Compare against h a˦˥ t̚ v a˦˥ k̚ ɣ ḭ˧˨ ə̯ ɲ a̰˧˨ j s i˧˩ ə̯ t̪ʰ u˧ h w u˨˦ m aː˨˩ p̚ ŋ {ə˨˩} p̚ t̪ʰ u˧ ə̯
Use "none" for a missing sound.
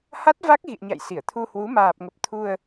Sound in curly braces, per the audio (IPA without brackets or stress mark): ə˨˩